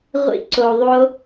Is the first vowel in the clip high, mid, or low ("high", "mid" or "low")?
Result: high